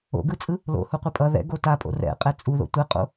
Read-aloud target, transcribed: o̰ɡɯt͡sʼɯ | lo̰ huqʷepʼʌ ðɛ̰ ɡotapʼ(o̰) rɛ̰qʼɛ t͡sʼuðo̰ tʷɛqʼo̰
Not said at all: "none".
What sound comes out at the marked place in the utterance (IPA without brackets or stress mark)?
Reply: o̰